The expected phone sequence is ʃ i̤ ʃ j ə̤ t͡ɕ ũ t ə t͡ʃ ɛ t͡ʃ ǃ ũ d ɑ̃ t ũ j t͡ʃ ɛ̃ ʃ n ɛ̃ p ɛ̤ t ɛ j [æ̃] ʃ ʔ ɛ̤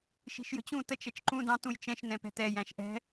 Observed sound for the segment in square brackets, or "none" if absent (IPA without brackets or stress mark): æ̃